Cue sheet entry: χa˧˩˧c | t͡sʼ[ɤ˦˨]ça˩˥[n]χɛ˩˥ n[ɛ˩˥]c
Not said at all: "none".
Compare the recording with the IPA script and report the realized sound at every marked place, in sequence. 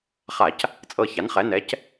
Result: ɤ˦˨, n, ɛ˩˥

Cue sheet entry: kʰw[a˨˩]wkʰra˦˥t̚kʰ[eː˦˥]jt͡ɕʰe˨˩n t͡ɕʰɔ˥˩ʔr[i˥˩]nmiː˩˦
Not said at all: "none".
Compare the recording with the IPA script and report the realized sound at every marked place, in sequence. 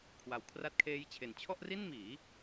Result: a˨˩, eː˦˥, i˥˩

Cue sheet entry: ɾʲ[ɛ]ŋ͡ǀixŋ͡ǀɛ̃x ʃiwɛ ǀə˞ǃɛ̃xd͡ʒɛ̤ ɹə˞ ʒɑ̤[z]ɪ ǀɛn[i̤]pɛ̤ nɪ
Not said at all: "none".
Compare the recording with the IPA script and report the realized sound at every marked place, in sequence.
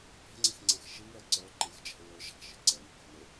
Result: ɛ̤, ʃ, i̤

